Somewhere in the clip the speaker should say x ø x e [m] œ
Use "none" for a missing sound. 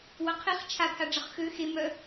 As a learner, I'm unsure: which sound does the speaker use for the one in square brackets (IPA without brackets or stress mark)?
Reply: m